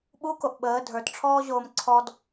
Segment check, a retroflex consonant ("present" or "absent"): present